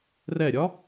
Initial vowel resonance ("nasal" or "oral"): oral